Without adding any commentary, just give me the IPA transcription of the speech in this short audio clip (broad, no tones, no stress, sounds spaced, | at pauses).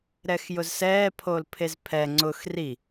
ɾ ɛ x j ʊ z s ɛː pʰ o l pʰ e z pʰ ɛ ŋ͡ǀ ʊ x r i